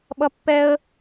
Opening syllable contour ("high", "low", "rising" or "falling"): high